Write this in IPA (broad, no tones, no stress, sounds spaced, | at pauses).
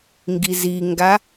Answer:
ŋ ɡ i z i ŋ ɡ a